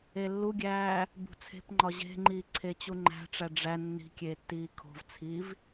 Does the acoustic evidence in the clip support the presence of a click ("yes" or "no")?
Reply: yes